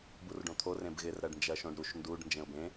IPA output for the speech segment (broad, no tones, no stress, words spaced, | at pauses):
burɖõt̪ʰo rẽbɣɪrɾɜɖ nd͡ʒɜʃõɖɾuʃ nduɖ nd͡ʒẽʊ̯bẽ